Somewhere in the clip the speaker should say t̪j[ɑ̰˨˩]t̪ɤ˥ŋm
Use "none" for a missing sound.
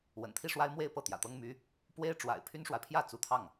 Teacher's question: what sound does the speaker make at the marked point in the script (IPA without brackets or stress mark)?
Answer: ä̰˨˩